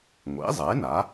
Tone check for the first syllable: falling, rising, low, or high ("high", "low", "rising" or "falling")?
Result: rising